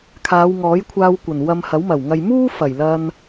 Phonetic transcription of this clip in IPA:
kʰ aː˨˧ w ŋ ɔː˨˥ j kʷʰ aː˧ w kʷ ɐ˨˩ n w ɐ˧ m h ɐ˨˥ w m ɐ˨˩ w ŋ ɐ˨ j m uː˥ f ɐ˨˩ j l ɐ˧ n

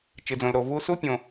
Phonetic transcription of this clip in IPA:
t͡ʃ ɨ˩ d͡z õ˩ l ɾ o˩ v u˥ s u˥ pʲ õ˩

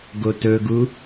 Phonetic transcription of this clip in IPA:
ɡ o t ɵ ɡ u

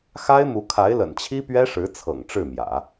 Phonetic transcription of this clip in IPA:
x a˥ ɪ̯ m u˧˥ kʰ a˧˥ ɪ̯ l ə̰˨˩ n t͡ɕʰ i˥ p ɥ ɛ˥ ʂ ɻ̩˧˥ t͡sʰ ɤ̰˨˩ ŋ ʈ͡ʂ ɻ̩˥˩ m j ä̰˨˩˦

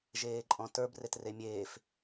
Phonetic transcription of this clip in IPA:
ʒ eː ǃʼ ɔ̃ t ə˞ b r e t r e mʲ eː f

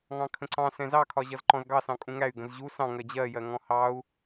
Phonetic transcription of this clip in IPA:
ŋ ɑ̃ kʰ ə̃ ǀ ɑ̃ s ɛ̃ z ɑ kʰ ɒ ʑ ʌ z ǃ ɔ̃ z ɡ ɑ s ɑ̃ kʼ ũ ŋ æ y̯ ɡ ə̃ z ʑ u s ɑ̃ ŋ ɜ d͡ʑ ɜ j ɜ ŋ ɔ̃ h ɑ u̯

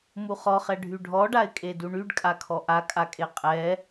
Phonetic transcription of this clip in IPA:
m u χ ɔ χ ɛ ɖʱ y ɖʱ ɔ ɖ a ɪ̯ kʼ e d u ɳ y ɖ kʼ a kʰ ɔ ʔ a kʼ a kʼ e qʼ ɛ

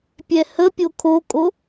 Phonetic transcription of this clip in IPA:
pʲ ɛ h ə pʲ o kʰ o kʼ o

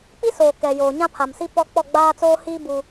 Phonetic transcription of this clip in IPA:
k͡p i˦ s oː˨ k ɛ˨ j oː˨ ɲ ã˦ pʰ a˨ m s i˦ p ɔ˦ k͡p ɔ˦˨ ɡ͡b aː˦ t͡s oː˦ h iː˦ b u˦

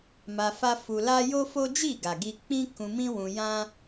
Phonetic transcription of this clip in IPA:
m a˧ f a˦ f u˧ l a˦ j o˦ f o˦ d͡ʒ i˦˨ ɡ a˨ ɡ i˧ k͡p ĩ˦ k ũ˧ m ĩ˦ w ũ˧ j ã˦

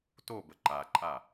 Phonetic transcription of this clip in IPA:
t o b ə ǃ a ǃʼ a

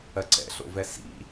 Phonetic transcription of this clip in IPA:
ɜ ǀ ɛ̰ ɬ o̰ v ɛ s ḭ

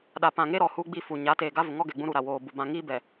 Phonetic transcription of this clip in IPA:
ɗ a˨ p ã˨ ŋ e˦ ɾ ɔ˨ h u˦ ɡ͡b i˦˨ f u˨ ɲ a˨˦ t eː˨ ɡ a˦ v ʊ˨ ŋ ɔ˦ ɡ ɛ˨ ɡ͡b ũ˦ ɾ u˨ ɾ a˨ w oː˨ b u˨ b ã˨ ŋ iː˦ b ɛ˨

